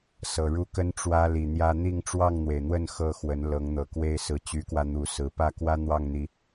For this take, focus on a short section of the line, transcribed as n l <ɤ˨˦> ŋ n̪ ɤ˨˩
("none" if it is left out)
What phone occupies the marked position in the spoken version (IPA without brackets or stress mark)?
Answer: ɤ˨˦